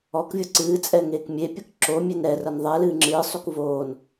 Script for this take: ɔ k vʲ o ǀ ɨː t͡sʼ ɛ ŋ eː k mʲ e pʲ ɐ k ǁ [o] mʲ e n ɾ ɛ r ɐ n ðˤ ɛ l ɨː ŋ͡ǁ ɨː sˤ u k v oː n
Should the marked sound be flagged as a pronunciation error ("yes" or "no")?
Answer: no